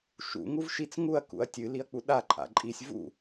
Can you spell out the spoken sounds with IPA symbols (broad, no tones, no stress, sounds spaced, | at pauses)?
ʃ ṵ ŋ u v ʃ i t͡s ŋ u ɐ̯ k ṵ ɐ̯ tʲ ɨ l i ɐ̯ k͡p u ɗ a ǃʼ a̰ ǃʼ i sʲ v ṵ